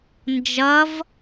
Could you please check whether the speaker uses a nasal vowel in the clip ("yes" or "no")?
no